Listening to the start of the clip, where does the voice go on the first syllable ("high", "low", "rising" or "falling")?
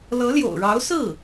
rising